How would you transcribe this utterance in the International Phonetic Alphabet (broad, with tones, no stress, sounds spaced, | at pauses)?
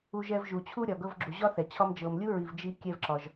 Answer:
u˧ ʒ ɛ˧ v ʒ u˩ t͡ɕʰ u˥ ɾʲ ɒ˩ ɡ ɤ˧ v ɡ͡ǁ u˩ ʑ ɒ˥ θ ɛ˩ t͡ɕʰ ɒ˧ m d͡ʒ ɤ˩ m lʲ u˥ ɹ i˩ v d͡ʒ i˧ kʲ ɛ˧ v ǁ ɒ˩ ʒ